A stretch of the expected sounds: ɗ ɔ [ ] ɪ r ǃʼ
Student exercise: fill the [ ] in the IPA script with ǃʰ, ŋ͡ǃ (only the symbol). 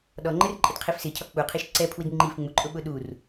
ŋ͡ǃ